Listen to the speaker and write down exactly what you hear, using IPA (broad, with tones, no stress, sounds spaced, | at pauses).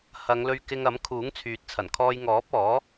h ɐ˨˧ ŋ l ɵ˧ ɥ k ɪ˧ ŋ ɐ˨˥ m kʰ uː˨˥ ŋ t͡sʰ yː˨ t̚ t͡sʰ ɐ˨˩ n kʰ ɔː˧ j ŋ ɔː˨˥ p̚ ɔː˨˥